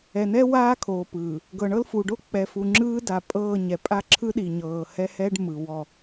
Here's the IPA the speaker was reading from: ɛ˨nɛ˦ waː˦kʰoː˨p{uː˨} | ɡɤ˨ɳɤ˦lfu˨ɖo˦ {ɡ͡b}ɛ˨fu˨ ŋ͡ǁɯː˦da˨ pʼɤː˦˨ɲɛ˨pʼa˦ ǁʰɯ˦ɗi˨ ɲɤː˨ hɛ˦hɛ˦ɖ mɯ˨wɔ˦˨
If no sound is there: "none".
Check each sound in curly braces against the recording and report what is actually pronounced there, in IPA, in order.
ɯː˨, k͡p

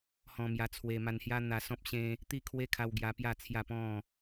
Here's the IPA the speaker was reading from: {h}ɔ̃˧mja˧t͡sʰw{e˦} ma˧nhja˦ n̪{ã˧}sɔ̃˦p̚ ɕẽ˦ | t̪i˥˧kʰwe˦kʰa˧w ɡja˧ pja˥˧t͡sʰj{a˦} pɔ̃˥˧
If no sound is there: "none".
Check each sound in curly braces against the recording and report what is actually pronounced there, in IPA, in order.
h, e˧, a˧, a˥˧

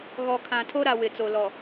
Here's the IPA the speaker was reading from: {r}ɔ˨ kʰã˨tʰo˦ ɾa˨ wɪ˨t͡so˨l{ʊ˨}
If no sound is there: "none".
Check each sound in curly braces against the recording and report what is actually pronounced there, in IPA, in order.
ɣ, ɔ˨

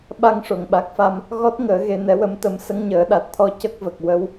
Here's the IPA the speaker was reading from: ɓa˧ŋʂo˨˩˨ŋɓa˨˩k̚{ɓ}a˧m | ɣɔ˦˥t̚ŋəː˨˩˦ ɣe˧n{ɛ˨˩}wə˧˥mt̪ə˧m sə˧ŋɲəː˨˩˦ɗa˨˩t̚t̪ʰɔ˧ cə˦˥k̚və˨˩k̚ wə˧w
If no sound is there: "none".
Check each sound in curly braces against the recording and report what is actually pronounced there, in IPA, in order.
f, ɛ˧˥

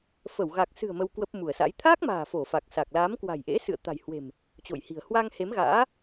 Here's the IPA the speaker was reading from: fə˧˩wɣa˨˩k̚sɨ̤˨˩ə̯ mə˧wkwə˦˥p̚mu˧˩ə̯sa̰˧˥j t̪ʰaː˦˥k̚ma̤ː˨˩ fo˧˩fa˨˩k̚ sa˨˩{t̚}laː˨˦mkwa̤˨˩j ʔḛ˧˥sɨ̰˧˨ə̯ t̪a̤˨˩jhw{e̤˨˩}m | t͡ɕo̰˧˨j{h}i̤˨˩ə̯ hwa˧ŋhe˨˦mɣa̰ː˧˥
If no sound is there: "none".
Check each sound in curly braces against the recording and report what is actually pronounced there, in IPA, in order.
k̚, e̤˨˩, h

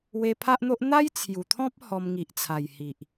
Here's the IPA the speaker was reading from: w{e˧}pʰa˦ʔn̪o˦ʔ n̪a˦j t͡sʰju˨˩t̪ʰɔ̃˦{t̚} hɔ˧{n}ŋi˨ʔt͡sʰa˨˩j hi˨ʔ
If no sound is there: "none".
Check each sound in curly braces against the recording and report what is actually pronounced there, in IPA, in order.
e˧, p̚, m

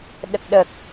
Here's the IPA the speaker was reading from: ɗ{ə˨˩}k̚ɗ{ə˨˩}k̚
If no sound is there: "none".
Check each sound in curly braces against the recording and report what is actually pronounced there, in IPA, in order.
ə˨˩, ə˨˩

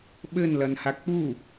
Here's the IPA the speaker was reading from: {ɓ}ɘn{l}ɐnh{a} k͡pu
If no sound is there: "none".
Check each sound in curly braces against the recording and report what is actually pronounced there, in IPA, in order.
ɓ, l, a

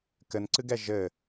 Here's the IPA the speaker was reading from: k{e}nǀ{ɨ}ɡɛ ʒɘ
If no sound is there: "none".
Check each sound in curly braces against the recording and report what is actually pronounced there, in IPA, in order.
ɘ, ɨ

